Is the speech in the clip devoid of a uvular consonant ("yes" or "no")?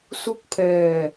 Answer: yes